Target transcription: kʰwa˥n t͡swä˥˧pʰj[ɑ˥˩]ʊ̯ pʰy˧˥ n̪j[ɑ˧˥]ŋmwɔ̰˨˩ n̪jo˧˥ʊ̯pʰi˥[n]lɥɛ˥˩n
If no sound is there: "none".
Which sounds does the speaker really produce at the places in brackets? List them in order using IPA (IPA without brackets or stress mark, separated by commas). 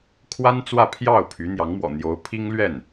ɑ˥˩, ɑ˧˥, ŋ